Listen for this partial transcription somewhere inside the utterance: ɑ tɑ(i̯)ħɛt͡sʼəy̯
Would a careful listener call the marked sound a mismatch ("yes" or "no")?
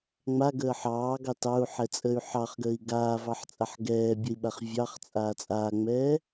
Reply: yes